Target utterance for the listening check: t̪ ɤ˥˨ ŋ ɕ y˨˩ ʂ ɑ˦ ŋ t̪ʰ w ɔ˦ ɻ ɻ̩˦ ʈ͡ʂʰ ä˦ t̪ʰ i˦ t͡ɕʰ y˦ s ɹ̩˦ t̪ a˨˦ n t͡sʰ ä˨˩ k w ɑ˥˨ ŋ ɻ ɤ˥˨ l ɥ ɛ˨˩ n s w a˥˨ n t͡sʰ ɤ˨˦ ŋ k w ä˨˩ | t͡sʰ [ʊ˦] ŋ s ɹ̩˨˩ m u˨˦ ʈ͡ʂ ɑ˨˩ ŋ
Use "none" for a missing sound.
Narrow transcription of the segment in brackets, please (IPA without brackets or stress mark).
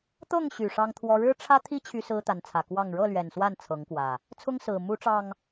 ʊ˦